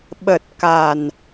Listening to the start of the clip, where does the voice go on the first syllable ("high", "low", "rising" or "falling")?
low